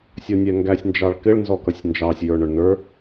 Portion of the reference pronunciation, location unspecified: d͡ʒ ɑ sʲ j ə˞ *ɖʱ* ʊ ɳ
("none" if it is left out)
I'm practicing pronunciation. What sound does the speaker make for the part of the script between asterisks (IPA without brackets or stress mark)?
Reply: ɳ